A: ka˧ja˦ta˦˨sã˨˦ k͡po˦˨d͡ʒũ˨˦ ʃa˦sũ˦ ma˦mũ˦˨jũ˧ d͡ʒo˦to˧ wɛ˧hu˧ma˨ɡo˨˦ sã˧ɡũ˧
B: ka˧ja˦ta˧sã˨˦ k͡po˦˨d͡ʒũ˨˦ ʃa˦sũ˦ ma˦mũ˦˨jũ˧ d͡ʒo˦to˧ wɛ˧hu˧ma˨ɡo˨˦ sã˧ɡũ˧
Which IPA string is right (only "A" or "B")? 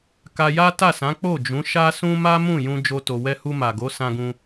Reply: A